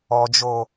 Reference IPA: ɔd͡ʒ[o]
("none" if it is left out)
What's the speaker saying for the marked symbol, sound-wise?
o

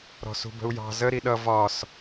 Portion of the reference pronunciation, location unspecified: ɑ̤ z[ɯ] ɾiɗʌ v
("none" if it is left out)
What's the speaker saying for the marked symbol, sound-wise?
ə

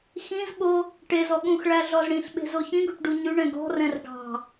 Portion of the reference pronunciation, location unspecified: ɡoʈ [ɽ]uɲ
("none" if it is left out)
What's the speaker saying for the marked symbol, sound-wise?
ɖ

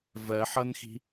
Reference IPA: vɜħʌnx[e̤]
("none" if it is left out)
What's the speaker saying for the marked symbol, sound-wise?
i̤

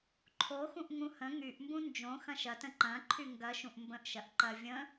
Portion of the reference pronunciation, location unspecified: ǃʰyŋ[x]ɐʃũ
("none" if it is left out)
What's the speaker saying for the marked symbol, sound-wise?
ɡ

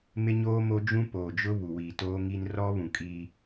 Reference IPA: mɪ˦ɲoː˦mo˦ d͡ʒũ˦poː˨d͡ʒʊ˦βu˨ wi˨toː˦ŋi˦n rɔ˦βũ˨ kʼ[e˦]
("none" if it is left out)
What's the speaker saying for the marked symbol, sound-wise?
i˦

